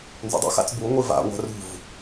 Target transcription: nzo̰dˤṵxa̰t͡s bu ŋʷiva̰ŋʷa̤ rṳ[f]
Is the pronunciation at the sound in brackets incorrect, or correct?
incorrect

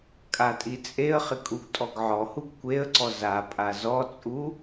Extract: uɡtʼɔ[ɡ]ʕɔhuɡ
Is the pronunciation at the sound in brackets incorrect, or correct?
correct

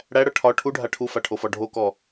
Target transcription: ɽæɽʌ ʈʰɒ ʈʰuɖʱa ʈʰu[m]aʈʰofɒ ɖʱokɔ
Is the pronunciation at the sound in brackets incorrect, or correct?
incorrect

